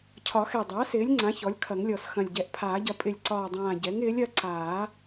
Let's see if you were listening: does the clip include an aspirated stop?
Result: yes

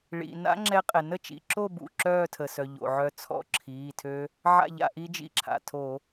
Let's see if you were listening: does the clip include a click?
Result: yes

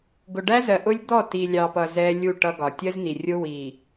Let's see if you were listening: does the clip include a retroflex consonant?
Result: yes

